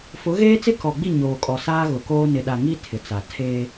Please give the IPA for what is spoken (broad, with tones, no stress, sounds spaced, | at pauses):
f ʊ˨˦ ɣ eː˦ t͡s ɪ˦ k ɔ˨ ɡ͡b i˦˨ ɲ oː˨ kʼ ɔ˨ s aː˦ ɣ ʊ˨ k oː˦ n ɪ˨ ɗ a˨ ŋ i˦ tʰ ɪ˨ t͡s a˨ tʰ eː˦